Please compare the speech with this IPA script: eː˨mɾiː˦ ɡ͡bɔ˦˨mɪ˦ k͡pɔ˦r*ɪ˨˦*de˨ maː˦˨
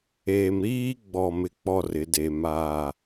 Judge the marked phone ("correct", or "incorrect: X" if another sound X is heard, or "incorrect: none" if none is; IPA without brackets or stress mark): correct